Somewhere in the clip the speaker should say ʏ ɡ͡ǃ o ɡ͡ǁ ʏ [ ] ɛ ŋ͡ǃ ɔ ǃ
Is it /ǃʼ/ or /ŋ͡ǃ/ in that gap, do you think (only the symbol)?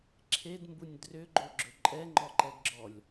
ǃʼ